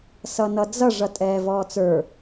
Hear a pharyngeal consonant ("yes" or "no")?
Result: no